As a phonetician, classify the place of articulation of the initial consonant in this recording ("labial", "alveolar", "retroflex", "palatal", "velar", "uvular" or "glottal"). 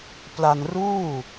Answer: labial